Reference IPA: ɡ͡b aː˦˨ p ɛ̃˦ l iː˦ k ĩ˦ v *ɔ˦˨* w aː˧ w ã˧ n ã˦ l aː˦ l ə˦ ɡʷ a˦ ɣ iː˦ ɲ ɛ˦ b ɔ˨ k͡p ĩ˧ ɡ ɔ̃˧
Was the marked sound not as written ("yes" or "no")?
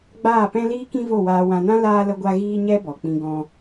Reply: yes